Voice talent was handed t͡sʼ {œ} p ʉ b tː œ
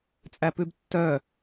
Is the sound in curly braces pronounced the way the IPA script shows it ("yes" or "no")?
no